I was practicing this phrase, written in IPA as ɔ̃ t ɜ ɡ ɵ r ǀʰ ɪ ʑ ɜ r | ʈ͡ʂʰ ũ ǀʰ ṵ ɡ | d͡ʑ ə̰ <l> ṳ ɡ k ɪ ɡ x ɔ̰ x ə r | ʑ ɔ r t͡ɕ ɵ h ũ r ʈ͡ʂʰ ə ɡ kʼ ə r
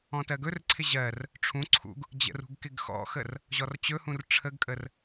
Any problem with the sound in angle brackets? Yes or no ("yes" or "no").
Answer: yes